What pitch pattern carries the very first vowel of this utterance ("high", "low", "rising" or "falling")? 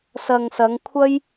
low